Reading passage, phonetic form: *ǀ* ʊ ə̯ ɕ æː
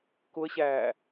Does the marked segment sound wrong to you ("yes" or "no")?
yes